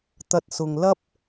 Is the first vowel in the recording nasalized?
no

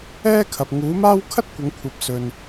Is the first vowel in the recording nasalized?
no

